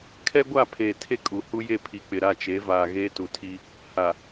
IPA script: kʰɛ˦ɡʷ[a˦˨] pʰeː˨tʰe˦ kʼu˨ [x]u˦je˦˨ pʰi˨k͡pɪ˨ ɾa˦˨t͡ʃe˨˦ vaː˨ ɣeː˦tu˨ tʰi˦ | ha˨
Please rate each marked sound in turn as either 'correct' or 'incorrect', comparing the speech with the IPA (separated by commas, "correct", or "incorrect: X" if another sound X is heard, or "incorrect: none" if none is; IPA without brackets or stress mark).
correct, incorrect: h